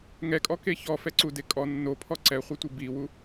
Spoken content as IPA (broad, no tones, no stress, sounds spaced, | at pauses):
ŋ ɛ kʼ ɔ k e ç ɔ f ɛ ǀ u d e kʼ ɔ nː o pʰ ɔ ǀ ɛ χʷ ɛ tʷ i b i w u